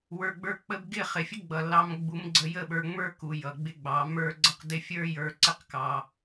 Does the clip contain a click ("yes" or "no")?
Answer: yes